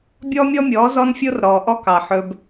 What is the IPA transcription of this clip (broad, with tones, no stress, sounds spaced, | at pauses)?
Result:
bʲ ɔː˦ mʲ ɔ˦ mʲ ɔː˨˦ z ɔ˦ n fʲ o˦ r ɾ ɔː˨ ʔ ɔ˦ k ɑ˨ ħ ɵ˦ b